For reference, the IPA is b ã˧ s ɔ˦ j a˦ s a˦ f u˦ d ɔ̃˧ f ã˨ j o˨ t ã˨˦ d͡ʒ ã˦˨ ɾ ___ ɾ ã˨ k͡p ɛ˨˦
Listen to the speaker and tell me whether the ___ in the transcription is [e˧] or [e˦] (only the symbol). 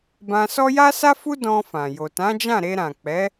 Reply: e˧